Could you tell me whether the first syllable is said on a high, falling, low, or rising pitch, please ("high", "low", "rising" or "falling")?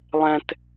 high